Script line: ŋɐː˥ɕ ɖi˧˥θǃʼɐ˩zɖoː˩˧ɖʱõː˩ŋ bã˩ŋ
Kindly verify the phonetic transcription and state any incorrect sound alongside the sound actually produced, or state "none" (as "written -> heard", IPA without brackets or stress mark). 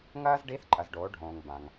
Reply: ɕ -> z